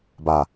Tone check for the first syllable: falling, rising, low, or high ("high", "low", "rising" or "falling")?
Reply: low